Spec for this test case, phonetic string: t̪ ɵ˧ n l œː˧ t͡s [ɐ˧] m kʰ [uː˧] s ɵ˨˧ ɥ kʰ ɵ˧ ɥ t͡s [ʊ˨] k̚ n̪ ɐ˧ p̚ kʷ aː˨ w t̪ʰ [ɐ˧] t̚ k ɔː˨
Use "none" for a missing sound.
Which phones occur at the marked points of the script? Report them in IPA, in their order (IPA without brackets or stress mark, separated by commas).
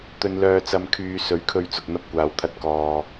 ɐ˧, yː˧, ʊ˨, ɐ˧